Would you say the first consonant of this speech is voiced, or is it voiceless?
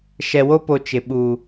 voiceless